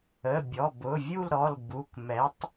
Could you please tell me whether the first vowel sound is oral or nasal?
oral